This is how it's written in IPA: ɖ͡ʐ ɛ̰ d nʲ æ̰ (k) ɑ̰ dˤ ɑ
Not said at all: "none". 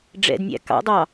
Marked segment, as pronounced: k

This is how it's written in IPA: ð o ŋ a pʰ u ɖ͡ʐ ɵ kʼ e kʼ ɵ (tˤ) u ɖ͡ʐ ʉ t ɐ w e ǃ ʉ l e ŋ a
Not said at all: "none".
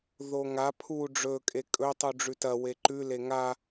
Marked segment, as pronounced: tˤ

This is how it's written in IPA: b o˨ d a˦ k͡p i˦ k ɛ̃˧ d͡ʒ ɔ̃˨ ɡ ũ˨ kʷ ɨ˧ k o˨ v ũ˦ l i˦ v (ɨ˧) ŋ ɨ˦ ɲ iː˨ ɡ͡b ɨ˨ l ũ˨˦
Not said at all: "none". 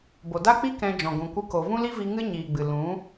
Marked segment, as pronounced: i˧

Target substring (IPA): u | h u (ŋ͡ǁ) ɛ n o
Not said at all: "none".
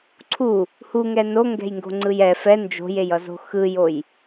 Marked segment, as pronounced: ŋ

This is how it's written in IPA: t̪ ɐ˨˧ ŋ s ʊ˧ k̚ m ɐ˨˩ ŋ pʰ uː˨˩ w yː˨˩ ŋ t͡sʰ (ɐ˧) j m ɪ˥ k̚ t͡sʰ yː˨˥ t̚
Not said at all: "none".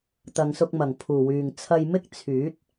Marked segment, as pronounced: ɐ˧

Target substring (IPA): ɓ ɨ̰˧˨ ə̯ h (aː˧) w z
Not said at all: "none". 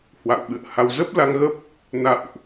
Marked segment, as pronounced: a˧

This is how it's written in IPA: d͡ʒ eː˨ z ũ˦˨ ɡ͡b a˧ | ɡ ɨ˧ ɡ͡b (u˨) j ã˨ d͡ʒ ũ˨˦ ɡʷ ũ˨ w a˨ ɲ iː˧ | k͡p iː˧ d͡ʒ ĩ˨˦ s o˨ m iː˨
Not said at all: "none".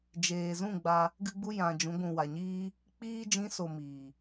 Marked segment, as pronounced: u˧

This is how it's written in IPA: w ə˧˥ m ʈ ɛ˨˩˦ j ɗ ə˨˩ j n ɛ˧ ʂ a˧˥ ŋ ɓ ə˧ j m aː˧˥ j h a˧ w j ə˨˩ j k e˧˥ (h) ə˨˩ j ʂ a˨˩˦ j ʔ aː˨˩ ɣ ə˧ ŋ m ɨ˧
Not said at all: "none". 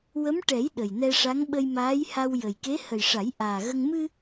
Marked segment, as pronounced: h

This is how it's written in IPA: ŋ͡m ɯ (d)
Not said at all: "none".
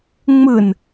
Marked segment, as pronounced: n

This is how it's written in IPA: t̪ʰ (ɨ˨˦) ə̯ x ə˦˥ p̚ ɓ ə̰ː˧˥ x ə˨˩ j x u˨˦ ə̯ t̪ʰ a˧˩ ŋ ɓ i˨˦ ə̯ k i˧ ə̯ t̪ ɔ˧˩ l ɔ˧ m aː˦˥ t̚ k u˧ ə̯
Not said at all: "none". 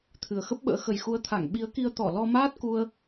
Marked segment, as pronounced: ɨ˨˩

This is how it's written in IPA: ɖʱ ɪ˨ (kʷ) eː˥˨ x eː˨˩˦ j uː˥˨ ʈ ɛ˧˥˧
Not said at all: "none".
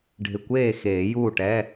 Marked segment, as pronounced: kʷ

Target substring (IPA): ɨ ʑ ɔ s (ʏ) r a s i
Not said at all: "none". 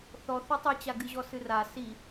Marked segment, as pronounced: ɨ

